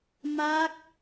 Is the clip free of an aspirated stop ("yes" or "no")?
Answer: yes